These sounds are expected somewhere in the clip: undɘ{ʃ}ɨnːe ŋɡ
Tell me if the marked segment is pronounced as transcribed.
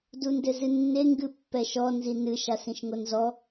no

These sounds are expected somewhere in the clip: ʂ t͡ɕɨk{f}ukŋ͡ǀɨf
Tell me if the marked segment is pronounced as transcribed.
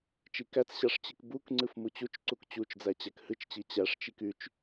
no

